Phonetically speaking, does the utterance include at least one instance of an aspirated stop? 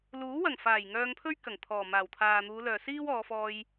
yes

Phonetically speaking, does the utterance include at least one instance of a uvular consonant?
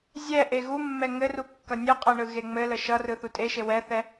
yes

